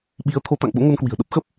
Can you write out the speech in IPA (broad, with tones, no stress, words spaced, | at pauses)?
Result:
ɓi˨˦ə̯t̪ʰo˨˦ t̪a̰˧˨ŋɓo̰˧˥ŋo˧n kwi̤˨˩ə̯ɗə˦˥p̚ xə˦˥p̚